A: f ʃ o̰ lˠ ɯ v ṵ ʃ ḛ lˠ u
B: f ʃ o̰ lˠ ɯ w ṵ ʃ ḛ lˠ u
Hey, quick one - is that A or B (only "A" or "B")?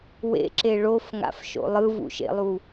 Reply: A